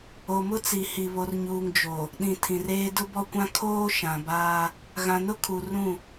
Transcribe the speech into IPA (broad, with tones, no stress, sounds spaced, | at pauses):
o˨ m ʊ˦ t͡s i˨ h i˨ β o˨ r ɲ uː˨ ŋ d͡ʒ o˨ | ɗ ĩ˨ tʰ ĩ˨ r eː˦ d ʊ˦ b ɔ˦ kʷ ã˦ kʰ oː˦ ʃ ã˨ b aː˦ | ɣ ã˨ n ʊ˦ kʰ u˨ r ũ˦˨